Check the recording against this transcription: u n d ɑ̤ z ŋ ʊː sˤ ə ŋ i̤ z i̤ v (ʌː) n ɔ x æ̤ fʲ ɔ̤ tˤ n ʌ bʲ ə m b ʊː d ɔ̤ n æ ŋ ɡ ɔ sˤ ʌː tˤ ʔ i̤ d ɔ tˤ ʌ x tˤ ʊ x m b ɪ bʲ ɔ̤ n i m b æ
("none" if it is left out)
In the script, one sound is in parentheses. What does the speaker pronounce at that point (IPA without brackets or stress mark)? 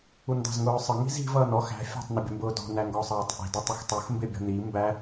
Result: ʌː